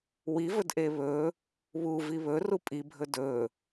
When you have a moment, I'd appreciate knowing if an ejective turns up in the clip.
yes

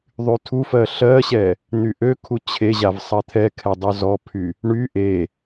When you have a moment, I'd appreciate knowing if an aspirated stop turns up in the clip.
yes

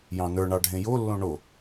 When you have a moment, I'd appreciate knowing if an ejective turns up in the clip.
no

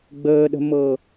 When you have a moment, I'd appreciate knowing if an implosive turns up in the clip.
yes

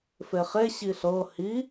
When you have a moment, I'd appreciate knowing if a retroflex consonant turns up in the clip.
no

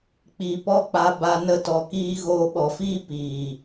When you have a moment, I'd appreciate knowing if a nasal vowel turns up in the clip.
no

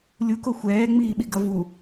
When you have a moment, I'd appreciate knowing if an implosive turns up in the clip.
yes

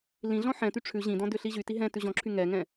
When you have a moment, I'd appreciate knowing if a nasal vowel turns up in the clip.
yes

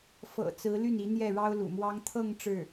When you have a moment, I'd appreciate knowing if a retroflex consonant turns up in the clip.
yes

